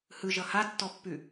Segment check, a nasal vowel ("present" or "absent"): absent